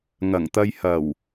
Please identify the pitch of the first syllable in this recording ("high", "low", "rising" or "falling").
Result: low